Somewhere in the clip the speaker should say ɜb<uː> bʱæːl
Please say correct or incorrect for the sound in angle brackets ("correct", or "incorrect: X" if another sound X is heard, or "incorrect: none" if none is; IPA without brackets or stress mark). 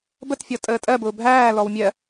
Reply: incorrect: ʊː